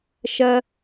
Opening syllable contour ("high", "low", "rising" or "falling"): high